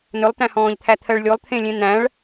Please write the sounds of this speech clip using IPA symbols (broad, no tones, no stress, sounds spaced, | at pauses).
n ɵ lˠ t æ̃ h ɔ̃ː ʎ t̪ʰ æ t̪ʰ ɜ ɭ lʲ o lˠ t̪ʰ ẽ lʲ ẽ n̪ æ̃ ɭ